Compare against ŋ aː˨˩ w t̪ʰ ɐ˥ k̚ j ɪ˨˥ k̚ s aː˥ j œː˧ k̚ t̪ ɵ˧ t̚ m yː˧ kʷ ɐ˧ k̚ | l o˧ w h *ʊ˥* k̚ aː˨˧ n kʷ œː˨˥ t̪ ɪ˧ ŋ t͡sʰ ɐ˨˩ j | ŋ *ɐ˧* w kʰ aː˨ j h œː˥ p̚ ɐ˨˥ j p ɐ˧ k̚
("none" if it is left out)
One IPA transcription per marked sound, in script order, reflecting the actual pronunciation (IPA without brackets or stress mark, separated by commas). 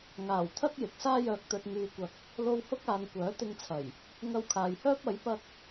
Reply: ʊ˥, ɐ˧